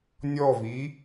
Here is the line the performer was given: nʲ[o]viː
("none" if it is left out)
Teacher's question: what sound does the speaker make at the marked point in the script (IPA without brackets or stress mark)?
ɔ